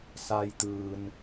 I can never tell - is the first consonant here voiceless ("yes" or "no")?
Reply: yes